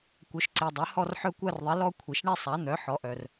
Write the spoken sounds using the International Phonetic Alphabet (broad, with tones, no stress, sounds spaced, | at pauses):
kʷ œ˩˥ ʃ ǀ i˩ dˤ œ˩˥ h ɔ˥˧ r ħ œ˥˧ kʷ a˥˧ r ðˤ i˩˥ l ɔ˥˧ kʷʰ i˩ ʃ ɳ e˥˧ sˤ a˩˥ n̪ œ˩˥ ħ ɔ˩˥ ʔ œ˩ r